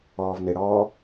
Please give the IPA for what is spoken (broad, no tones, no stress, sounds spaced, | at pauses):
ɔː v n ɪ ɽ ɔː